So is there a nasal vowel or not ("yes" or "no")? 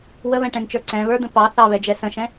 yes